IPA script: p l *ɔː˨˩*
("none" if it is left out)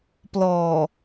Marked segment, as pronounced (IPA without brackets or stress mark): ɔː˨˩